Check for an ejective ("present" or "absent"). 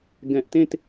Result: absent